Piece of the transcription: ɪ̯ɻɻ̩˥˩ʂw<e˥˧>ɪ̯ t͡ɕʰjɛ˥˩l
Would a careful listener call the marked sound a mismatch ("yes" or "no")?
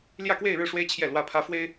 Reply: yes